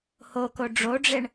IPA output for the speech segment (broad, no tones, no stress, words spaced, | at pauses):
hoko ɖ͡ʐoɖ͡ʐeɳ